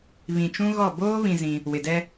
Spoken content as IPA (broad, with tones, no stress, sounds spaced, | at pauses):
β ĩ˨ t͡ʃ ũ˦ ɣ ɔ˦˨ b oː˦ β ĩ˨ z ĩ˦ | w ɪ˨ d ɛ˦